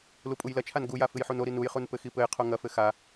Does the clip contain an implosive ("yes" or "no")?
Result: no